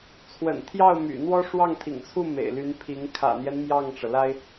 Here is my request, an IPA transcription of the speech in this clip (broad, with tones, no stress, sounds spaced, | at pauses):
t͡sʰ w ə̰˨˩ n t̪ʰ j ɑ˥˩ ʊ̯ m y̰˨˩ n̪ w ɔ˥ ʂ w ɑ˥˩ ŋ t̪ʰ ḭ˨˩ ŋ t͡sʰ u˥˩ m ḛ˨˩ ɪ̯ l y˧˥ n pʰ i˧˥ ŋ kʰ ä̰˨˩ n̪ j ɛ˦ n m j ɑ˥˩ ŋ ʈ͡ʂ ɤ˩ l a˥ ɪ̯